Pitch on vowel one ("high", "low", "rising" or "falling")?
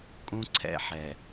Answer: high